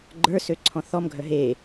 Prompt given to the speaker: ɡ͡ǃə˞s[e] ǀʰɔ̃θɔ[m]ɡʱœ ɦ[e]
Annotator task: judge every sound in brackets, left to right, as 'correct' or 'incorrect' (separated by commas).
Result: incorrect, correct, correct